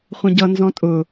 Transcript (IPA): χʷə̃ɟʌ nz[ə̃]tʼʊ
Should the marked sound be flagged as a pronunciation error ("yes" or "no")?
yes